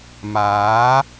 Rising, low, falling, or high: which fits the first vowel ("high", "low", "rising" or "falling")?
rising